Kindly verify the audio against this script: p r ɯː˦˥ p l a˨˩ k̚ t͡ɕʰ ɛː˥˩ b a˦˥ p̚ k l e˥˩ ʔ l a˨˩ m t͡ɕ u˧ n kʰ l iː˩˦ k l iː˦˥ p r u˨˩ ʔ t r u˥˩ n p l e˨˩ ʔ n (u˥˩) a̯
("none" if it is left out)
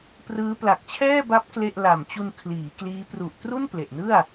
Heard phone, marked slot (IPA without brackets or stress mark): ɯ˥˩